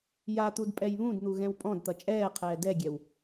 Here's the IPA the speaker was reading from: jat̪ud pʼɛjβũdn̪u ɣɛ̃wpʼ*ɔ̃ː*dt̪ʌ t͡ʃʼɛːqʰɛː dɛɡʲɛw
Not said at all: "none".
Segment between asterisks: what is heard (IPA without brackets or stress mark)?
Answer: ɔ̃